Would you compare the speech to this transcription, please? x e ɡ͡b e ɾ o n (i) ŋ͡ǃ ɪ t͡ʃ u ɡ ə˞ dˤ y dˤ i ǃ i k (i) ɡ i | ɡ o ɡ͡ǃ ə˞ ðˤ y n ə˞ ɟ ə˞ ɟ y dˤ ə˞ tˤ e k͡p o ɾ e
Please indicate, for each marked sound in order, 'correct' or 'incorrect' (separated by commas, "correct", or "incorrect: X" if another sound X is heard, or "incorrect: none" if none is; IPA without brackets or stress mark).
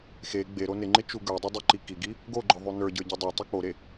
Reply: incorrect: ɪ, correct